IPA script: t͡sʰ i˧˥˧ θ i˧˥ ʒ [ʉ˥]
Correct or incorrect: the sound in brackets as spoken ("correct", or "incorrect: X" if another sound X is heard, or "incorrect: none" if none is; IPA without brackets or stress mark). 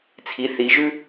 correct